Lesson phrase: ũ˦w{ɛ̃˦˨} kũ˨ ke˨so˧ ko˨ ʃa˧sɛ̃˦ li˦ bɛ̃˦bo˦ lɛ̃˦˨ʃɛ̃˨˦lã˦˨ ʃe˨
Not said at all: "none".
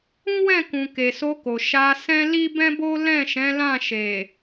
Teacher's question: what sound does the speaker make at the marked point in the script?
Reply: ɛ̃˦˨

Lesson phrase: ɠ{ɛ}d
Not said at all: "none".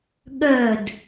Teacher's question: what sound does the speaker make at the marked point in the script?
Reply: œ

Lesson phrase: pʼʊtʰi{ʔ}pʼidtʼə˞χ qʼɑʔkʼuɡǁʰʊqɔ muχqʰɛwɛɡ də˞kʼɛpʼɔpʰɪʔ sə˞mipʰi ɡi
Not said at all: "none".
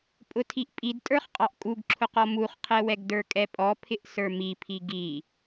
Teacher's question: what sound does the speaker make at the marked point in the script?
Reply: ʔ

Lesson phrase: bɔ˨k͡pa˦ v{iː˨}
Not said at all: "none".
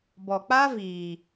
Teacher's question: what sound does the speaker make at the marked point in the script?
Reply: iː˨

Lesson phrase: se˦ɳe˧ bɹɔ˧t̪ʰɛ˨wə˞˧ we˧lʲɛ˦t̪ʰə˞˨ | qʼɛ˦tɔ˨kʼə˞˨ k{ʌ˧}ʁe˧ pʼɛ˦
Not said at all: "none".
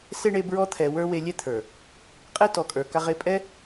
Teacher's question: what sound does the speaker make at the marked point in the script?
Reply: a˧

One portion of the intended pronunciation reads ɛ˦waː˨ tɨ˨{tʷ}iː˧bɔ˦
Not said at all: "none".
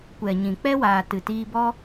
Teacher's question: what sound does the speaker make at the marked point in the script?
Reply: t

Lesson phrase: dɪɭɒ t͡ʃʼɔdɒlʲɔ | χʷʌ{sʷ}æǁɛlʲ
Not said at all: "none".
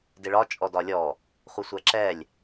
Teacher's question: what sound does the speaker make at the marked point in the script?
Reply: sʷ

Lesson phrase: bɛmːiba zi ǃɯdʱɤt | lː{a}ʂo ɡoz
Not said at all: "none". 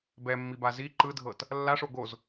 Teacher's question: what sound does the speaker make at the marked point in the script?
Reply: a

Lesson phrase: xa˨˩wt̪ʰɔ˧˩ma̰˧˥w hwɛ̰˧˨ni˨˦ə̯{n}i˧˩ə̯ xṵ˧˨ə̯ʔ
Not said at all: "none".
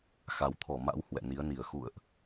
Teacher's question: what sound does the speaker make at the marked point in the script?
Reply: n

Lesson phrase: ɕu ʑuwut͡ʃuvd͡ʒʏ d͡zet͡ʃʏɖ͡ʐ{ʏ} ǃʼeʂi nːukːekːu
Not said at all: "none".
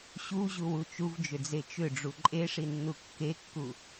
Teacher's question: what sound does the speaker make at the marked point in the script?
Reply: u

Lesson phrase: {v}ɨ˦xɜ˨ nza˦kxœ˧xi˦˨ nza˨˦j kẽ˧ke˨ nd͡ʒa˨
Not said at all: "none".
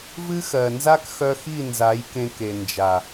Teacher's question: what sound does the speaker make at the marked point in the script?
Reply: v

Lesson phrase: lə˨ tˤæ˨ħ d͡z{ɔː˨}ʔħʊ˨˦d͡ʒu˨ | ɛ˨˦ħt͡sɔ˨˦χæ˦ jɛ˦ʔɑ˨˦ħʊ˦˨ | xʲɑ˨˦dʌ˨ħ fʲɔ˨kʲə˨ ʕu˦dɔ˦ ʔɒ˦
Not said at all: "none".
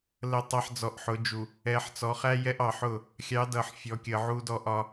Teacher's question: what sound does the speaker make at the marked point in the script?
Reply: ɔ˨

